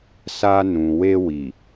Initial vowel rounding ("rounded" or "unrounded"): unrounded